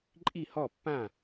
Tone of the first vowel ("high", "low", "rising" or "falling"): falling